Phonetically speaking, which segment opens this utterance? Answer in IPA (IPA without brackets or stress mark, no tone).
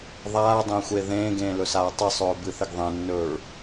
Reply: ðˤ